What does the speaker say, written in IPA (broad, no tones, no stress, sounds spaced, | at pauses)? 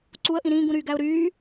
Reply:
ǀ u ə̯ ʔ ĩ ɾ ĩː ɡ ũ ɾ yː ɡ æ ʊ̯ ɾ yː